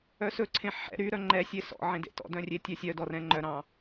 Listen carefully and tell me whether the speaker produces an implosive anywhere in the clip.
no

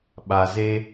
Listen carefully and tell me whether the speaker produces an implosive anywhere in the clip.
yes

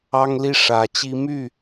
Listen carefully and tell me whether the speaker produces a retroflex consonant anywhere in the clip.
yes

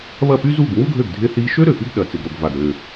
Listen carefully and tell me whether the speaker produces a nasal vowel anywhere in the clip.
no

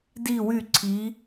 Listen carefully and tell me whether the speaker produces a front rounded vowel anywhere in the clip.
yes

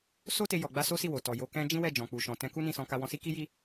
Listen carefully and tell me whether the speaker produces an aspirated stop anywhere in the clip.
no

